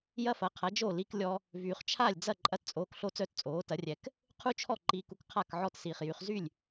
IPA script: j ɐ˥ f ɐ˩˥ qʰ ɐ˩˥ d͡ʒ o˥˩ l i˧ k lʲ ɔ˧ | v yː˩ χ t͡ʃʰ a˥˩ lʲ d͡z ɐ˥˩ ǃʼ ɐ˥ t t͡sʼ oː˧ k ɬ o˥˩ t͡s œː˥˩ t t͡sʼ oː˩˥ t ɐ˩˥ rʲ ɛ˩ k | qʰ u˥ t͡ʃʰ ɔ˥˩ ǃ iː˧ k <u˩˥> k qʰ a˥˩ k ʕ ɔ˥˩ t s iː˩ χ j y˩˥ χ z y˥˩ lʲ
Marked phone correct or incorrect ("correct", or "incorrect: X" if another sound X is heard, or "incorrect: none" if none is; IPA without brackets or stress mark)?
incorrect: u˧